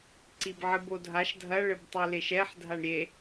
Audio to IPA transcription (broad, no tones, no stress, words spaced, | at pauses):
ǀibʕɨbodʱaʃ dʱɐ ɭɘbtˤeleʃɛħ dʱaɳɾʲe